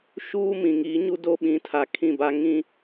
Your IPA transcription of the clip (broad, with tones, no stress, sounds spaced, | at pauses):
ʃ uː˦ m ĩ˨ ŋ iː˨˦ ɲ u˦ d o˦ ɓ ĩ˨˦ tʰ a˨ kʰ ĩ˦˨ b a˦ ŋ ĩ˦